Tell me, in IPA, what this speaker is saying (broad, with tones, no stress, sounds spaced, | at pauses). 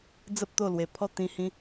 d͡z ə˨ p̚ t̪ o˨˩ l w e˨˩ pʰ ɔ˥˧ t̪ ĩ˧ h ĩ˧